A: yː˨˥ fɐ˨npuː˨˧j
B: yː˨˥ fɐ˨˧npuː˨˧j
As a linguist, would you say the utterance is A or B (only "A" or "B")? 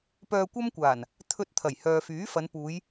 B